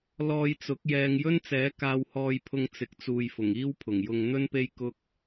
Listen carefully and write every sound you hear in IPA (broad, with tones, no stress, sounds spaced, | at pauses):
l ɔː˧ j t͡s ʊ˨˥ k̚ j ɛː˧ ŋ j ɵ˥ n t͡s ɛː˨˥ k aː˧ w h ɔː˧ j pʰ ʊ˧ ŋ t͡s ɪ˨˥ k̚ t͡s uː˨ j f ʊ˨˩ ŋ iː˥ w pʰ ʊ˨˩ ŋ j ʊ˧ ŋ n̪ ɵ˥ n p e˥ j k ʊ˥ k̚